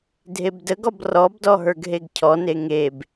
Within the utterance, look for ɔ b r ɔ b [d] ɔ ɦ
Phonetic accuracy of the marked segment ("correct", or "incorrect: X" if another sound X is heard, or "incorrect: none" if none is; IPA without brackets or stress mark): correct